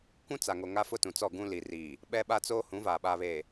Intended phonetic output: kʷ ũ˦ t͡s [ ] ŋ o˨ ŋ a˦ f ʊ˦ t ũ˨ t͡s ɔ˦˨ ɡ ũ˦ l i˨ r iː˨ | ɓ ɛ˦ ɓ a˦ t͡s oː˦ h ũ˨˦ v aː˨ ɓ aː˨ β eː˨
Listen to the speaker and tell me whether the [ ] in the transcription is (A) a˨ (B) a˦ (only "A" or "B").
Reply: A